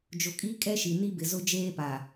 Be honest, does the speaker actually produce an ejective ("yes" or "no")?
yes